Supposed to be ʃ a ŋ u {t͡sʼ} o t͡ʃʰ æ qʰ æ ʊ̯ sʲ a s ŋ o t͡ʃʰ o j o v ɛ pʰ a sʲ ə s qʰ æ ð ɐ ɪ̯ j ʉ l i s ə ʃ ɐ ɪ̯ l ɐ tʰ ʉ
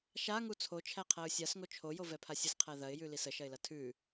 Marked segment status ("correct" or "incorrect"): incorrect